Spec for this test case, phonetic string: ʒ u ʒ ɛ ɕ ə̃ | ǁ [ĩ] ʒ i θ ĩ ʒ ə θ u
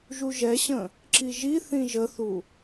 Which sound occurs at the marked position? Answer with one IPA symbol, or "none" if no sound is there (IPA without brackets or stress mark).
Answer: i